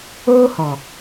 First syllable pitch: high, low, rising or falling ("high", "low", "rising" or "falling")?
high